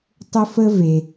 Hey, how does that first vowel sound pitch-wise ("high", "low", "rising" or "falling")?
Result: high